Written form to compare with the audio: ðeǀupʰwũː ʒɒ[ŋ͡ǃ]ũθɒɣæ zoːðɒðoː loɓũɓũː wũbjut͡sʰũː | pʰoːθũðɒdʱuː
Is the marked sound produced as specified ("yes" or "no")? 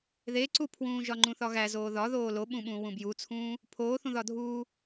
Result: yes